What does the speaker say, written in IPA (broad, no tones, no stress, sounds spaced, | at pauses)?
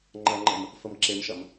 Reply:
ŋ͡ǃ ɐ ŋ͡ǃ ə m | f ə m ǁ e m ʃ ɐ m